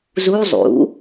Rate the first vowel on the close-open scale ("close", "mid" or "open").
close